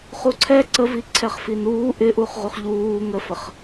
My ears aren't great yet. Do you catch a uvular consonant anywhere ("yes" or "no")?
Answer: yes